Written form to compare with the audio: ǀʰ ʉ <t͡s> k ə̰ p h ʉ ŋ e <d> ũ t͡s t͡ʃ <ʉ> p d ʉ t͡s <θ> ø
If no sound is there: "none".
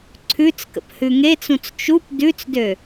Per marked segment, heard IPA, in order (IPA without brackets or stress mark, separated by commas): t͡s, t͡s, u, d